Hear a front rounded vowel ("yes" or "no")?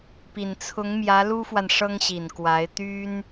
yes